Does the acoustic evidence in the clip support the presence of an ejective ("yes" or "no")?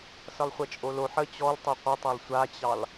yes